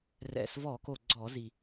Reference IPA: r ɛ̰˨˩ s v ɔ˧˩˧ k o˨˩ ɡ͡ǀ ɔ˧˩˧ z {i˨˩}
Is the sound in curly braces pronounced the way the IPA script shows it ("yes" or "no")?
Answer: yes